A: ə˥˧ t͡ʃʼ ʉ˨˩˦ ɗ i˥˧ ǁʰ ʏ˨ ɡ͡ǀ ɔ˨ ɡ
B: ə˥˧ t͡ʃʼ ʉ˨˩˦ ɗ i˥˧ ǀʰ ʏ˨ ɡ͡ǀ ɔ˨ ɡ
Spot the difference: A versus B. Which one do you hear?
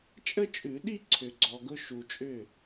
B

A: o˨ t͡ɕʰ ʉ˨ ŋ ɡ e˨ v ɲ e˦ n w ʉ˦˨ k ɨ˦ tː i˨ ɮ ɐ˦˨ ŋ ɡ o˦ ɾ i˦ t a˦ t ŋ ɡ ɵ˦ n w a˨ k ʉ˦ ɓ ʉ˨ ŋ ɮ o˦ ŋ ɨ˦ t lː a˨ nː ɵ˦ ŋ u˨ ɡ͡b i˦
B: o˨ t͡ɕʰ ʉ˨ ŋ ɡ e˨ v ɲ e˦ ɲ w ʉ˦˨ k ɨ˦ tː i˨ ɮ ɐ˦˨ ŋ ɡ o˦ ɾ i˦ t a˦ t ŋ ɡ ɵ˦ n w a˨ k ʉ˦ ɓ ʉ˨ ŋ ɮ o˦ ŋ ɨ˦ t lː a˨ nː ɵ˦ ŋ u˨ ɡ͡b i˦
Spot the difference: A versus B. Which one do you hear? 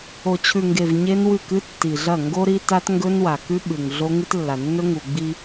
A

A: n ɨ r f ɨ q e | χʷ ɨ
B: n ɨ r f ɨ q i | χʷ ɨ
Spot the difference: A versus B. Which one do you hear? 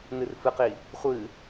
B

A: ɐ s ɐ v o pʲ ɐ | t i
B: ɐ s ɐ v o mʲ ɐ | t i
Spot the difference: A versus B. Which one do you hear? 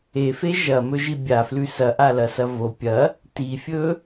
A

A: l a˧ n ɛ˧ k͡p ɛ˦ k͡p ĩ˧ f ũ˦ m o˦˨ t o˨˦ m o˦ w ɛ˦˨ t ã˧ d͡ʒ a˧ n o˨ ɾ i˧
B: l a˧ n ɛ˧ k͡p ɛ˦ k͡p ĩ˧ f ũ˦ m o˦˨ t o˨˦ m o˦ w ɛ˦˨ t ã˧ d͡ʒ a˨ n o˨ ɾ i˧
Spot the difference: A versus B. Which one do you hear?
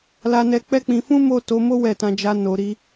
A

